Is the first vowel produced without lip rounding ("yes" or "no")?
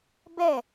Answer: yes